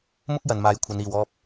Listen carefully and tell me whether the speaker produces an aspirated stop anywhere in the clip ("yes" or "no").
yes